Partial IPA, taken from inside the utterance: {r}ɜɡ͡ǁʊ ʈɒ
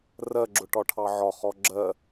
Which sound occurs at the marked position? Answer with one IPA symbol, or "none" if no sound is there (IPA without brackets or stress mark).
r